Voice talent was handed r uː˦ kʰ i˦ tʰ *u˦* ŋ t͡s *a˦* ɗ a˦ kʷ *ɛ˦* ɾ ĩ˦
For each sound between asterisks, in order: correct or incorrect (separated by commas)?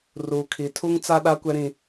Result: correct, correct, correct